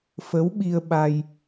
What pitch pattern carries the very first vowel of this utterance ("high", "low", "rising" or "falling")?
rising